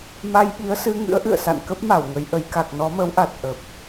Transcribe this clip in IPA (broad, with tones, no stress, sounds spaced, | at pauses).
m a˧ j ɓ i˨˦ ə̯ s ɨ˧ ŋ ɨ̰˧˥ ə̯ ʔ ɨ̰˧˨ ə̯ s a̰˧˨ n k ə˦˥ p̚ m a˧˩ w ŋ ə˨˦ j ʔ ə˨˦ j k a˨˩ k̚ n ɔ˨˦ m ə˨˦ w ʔ a˨˩ t̚ ʔ ə˨˩ p̚